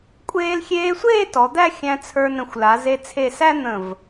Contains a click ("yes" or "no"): no